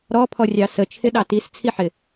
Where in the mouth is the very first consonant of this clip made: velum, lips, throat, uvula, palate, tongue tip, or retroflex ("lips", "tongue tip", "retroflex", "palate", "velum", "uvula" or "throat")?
tongue tip